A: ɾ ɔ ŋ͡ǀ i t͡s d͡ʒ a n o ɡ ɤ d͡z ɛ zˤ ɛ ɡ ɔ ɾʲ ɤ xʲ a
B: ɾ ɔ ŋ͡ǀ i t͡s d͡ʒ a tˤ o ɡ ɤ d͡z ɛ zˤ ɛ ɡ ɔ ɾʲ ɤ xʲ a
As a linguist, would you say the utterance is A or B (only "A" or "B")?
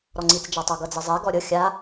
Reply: B